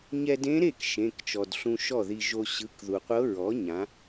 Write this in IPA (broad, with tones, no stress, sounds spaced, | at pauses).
ɲ ɛ˧ d ẽ˧˥ ɾ e˥˩ k ʃ ẽ˩˧˩ k t͡ʃ ɔ˩ d ɬ ũ˧ ʃ ɔ˥˩ ð i˧ ʒ o˧ ɕ ɯ˩˧˩ k ð u˩ qʷ ɤ˧˥ ɹ ɔ˩˥ ɲ ã˩˥